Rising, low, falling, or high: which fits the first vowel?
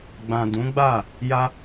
low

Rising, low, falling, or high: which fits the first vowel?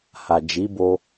low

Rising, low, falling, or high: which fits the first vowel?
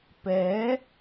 rising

